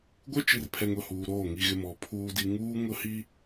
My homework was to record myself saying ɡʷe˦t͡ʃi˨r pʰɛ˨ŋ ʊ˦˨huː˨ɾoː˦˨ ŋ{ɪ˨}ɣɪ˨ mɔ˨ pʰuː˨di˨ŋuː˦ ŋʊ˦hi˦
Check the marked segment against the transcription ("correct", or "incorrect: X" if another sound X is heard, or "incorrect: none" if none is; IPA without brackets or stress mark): incorrect: i˨